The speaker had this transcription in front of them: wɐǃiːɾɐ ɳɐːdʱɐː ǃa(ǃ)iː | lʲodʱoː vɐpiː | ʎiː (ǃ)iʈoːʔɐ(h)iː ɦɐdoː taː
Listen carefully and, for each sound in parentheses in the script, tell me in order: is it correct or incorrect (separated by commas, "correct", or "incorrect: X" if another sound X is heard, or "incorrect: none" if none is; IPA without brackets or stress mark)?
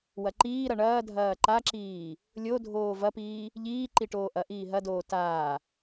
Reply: incorrect: ǁ, correct, incorrect: ʔ